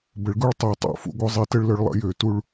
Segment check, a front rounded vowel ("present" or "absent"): present